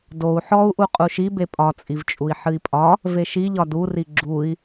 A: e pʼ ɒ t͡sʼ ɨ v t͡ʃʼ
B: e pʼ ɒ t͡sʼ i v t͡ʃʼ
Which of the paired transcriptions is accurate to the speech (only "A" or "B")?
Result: B